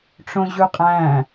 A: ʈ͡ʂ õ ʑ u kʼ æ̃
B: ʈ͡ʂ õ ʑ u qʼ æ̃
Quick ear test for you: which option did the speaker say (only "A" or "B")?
B